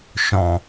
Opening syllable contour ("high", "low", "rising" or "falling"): low